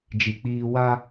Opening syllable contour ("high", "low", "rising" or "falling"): low